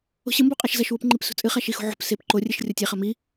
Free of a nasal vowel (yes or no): yes